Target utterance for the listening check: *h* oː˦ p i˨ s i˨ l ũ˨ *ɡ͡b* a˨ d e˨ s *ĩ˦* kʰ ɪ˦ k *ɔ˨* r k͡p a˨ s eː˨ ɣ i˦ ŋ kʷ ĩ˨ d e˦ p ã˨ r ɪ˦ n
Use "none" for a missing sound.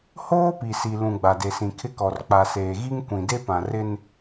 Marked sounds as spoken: h, ɡ͡b, ĩ˨, ɔ˨

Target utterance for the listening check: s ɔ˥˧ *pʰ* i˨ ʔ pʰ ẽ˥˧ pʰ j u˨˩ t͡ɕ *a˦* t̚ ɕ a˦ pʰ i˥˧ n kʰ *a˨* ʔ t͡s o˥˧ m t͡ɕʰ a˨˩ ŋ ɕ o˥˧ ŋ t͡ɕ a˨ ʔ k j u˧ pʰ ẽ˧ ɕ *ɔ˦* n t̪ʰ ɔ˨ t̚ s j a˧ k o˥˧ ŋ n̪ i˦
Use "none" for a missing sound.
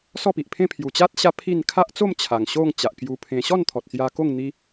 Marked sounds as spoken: p, a˦, a˦, ɔ˥˧

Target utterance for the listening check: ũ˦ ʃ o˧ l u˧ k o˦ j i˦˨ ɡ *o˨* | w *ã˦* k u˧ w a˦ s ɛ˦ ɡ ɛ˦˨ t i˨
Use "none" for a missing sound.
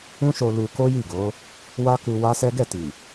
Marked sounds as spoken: o˨˦, a˦

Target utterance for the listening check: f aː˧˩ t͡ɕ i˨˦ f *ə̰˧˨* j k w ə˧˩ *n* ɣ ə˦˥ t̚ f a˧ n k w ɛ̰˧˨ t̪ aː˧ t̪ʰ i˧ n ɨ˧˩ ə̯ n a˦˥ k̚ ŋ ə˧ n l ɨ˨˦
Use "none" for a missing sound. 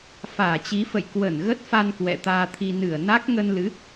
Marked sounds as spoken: ə̰˧˨, n

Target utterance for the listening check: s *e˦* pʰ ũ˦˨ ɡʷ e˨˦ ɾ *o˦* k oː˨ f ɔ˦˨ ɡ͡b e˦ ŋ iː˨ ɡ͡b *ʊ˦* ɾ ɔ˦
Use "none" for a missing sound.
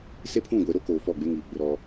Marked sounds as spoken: e˦, o˦, ʊ˦

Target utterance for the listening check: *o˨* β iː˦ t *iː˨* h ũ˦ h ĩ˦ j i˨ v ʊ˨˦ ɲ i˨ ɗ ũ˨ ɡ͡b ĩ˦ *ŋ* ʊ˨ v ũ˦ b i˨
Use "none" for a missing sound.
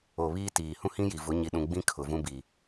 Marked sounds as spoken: o˨, iː˨, kʰ

